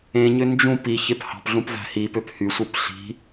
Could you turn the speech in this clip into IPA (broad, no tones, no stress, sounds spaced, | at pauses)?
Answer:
ẽ ɲ ø n d͡ʒ ũ p i ç e p h ɑ̤ p ɮ ũ p v æ̤ h i p ø p h y sʷ ɯ p ɬ i̤